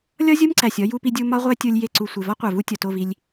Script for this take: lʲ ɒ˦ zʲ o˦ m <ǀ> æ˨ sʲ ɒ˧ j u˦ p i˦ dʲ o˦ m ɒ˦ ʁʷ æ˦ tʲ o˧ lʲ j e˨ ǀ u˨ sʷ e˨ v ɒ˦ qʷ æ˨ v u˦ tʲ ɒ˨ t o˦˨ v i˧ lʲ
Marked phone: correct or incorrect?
correct